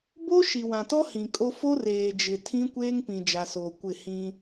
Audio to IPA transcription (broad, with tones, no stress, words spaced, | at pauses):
bo˦ ʃi˨wã˨tɔ˦ hĩ˨kʼo˦ fo˦reː˨d͡ʒɪ˨ tʰĩ˦kʷeː˦ŋpĩ˨ d͡ʒa˨soː˨kʷɪ˦˨ hĩ˦